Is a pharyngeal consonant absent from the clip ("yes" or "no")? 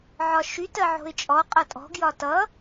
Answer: no